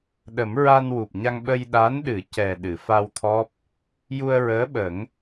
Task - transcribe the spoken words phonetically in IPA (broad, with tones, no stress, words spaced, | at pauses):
ɗə˨˩˦mɹa˧n wu˨˩p̚ɲa˧ŋ ɓə˧jɗa˧˥nɗɨ˨˩˦ cɛ˨˩ ɗɨ˨˩˨fa˧wt̪ʰɔ˦˥p̚ | ju˧ə̯ɹəː˧˥ɓə˨˩˦ŋ